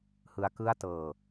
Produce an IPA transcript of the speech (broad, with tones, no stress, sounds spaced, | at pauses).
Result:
h ɯ˦˥ a̯ k ɯ˥˩ a̯ t ɤː˧